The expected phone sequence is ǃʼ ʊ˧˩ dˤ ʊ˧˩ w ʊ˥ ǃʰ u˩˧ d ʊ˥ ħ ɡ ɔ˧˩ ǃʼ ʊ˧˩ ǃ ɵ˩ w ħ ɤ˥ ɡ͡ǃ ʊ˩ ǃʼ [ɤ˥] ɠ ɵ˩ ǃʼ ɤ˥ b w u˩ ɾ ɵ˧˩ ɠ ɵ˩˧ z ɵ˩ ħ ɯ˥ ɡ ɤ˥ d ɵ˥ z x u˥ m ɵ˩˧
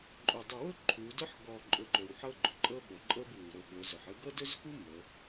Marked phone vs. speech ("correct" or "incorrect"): correct